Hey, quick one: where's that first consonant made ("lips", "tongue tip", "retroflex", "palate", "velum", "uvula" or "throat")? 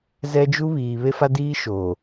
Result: tongue tip